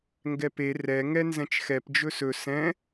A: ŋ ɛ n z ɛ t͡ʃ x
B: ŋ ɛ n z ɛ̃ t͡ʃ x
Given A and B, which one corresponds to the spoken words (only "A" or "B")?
B